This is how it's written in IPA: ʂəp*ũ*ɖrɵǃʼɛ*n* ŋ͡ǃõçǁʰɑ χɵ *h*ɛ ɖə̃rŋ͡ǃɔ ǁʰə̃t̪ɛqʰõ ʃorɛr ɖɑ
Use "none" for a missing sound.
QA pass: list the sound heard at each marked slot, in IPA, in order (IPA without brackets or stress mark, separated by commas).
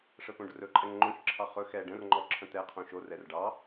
õ, ŋ, x